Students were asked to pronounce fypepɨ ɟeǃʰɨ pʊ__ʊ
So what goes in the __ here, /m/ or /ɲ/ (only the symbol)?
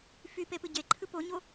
ɲ